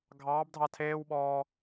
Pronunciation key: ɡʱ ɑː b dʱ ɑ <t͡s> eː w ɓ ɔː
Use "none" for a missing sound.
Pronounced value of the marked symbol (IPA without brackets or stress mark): tʰ